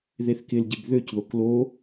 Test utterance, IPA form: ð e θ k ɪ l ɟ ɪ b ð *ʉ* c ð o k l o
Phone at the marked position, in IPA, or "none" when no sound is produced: ø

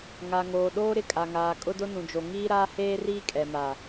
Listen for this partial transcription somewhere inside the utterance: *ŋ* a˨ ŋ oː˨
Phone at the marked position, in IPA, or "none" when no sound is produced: ŋ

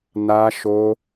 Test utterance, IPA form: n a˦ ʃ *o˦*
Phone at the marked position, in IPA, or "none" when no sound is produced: o˦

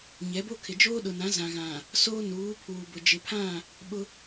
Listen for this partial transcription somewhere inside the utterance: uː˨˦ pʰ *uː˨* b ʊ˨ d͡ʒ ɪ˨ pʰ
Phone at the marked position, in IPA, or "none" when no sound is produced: uː˨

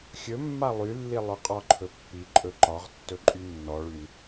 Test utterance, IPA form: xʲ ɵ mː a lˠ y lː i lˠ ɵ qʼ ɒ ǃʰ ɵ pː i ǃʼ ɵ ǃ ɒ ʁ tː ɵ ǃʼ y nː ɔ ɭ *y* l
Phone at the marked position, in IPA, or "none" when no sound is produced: y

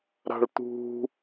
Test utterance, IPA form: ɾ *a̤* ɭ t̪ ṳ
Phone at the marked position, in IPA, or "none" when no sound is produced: a̤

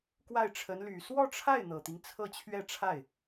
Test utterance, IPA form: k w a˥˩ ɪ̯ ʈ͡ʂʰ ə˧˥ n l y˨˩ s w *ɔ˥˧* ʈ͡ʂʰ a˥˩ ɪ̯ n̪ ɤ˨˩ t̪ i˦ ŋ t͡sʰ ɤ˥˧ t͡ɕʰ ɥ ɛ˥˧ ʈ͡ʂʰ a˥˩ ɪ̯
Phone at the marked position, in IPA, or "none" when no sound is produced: ɔ˥˧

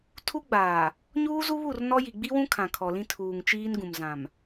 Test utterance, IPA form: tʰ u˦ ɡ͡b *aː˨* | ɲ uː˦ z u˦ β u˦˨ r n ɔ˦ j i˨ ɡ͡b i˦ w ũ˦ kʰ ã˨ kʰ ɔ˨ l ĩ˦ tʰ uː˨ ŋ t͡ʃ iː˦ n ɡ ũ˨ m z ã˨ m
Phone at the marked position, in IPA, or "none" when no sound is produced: aː˨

